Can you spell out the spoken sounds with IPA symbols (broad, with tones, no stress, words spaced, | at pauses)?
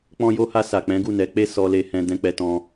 k͡pɔ̃˧jo˧ha˧sa˨ k͡pɛ̃˨˦ɡu˦˨nɛ˨˦k͡pe˦ sɔ˦le˦hɛ̃˦ dɛ̃˧k͡pɛ˧tɔ̃˧